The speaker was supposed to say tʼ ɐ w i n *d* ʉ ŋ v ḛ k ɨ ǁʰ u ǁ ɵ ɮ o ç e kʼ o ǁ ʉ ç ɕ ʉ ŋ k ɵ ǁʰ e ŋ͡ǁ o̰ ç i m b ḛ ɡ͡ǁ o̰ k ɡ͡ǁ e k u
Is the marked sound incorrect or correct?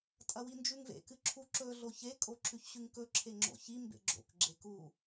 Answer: incorrect